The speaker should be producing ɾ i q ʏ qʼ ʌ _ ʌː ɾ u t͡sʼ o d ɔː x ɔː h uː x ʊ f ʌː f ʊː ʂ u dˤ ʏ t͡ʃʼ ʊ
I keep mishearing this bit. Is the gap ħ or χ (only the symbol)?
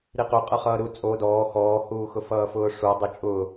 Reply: χ